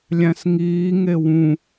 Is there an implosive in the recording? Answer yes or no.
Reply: no